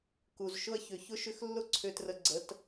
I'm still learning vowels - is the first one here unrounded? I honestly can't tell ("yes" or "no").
no